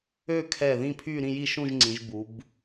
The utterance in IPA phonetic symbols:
ø˥˧kʰɛ˧˩ ðĩ˥˧pʰy˥˧ ɾĩ˥˧ji˥˧ʃũ˥˧ʒŋ͡ǀĩ˩˧ʒ bu˩˧b

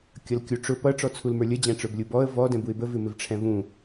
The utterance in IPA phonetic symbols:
kʲʌlkʲuʈ͡ʂʊ pʌ ʈ͡ʂɔt͡sʰulmə˞lʲə d͡ʑæ̃ʈ͡ʂə˞blʲubɔə̯ vɔ dɛ̃buɪ̯bə vɪmɪvʈ͡ʂʰɛ̃vũ

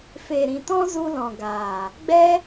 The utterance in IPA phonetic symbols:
fe˨ɾĩ˨tɔ̃˦zu˧ lɔ̃˨ɡaː˨ | ɡ͡bɛ˦

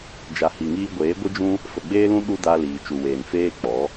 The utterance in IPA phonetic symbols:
d͡ʒa˨hi˨ŋiː˧ɡʷeː˨˦ ɡʷɨ˦d͡ʒũ˦ | fə˨ɡ͡beː˦lũ˦ ɗu˦da˧ liː˨t͡ʃu˨weː˨n feː˦k͡pɔ˨˦

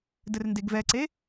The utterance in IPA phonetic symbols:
dɘrndeɡvɛǀe

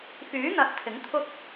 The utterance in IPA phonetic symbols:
fyː˨˥n̪ɐ˨˥t̚ t̪ʰɪ˨˥ŋt̪ʰʊ˥k̚

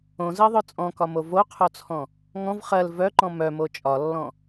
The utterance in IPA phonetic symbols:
õzɜðˤœ t͡sʼɔ̃kɒmo voqʰot͡sʰɔ̃ | ŋɔ̃v χɜl vœǃɔ̃ mœmo t͡ʃʼɒlːɔ̃

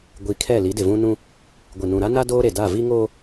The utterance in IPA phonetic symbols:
ɡʷi˨kʰɛ˦˨ li˨˦dɪ˨vũ˦nũ˦ | ɡʷɪ˨nũ˨ɾa˦na˦ doː˦ɾe˨da˦˨ vi˦ŋoː˦

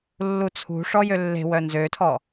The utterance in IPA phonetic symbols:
lːut͡sʰṳʂɔ jølːe̤wœ nzøtʰɔ

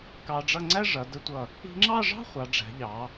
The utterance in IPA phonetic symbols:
kɑ˧ɖ͡ʐʌ˥˧ ŋ͡ǀæ˥ʐʌ˩˧ də˧tʷʌ˧˩ | i̤˧ŋ͡ǁɑ˥˧ʐɑ̤˥ χʷɑ˩˧ɖ͡ʐæ̤˩˧ʎɑ˩˧

